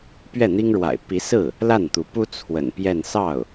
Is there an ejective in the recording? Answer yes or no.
no